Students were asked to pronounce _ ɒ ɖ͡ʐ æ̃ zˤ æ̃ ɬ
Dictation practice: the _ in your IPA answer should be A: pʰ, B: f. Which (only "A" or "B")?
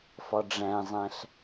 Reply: B